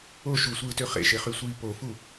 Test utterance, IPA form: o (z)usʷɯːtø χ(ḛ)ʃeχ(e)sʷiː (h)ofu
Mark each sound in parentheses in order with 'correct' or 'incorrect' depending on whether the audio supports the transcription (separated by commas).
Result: incorrect, correct, incorrect, incorrect